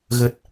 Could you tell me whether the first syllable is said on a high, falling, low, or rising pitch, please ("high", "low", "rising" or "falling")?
low